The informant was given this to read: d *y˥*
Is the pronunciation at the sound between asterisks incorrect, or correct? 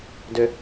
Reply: incorrect